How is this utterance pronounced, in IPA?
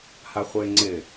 haχʷeŋ͡ǀɪ

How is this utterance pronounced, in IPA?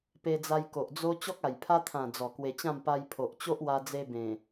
pe˧d͡za˧j ko˨ʔd͡zo˦ t͡ɕɔ˦k̚a˨˩jpʰa˦t̪ʰã˨˩ d͡zɔ˨˩kwe˧t͡ɕã˥˧m pa˧jpʰo˨ʔt͡ɕo˦ʔ wa˧d͡ze˧ bẽ˨˩

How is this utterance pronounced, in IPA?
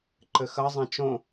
ǃɘxɐzˤɛ̃ t͡ʃõ

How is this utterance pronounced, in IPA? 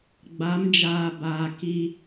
ɡ͡ba˨˦md͡ʒaː˨ baː˨ki˦

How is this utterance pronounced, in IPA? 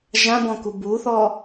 ʒãbɔ̃ku buθɔ

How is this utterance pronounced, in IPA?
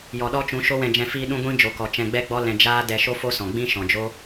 jɔ˨ɗɔ˦t͡ʃũ˨˦ ʃo˦wɛ̃˧d͡ʒɛ̃˧ fiː˧ɗũ˧ ɡʷĩ˦ d͡ʒo˨kɔ˨ t͡ʃɛ̃˧ɡ͡bɛ˦ɡ͡bɔ˦lɛ̃˧ d͡ʒaː˦dɛ˧ ʃo˦fo˦sɔ̃˨ɡ͡bĩ˦ ʃɔ̃˨d͡ʒo˦

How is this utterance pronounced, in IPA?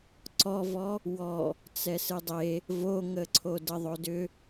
ǀɔvɔ | wɔ | t͡sɛsɨdˤe | voŋə ǀʰodəðˤodʏ

